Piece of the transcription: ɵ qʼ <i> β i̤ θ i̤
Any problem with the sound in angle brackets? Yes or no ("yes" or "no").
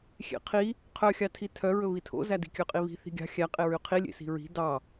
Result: no